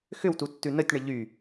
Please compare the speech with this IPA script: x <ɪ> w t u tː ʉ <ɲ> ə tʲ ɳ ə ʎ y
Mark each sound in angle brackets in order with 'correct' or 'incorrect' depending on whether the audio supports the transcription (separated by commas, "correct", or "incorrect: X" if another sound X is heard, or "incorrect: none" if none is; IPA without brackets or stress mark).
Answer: incorrect: ʏ, incorrect: n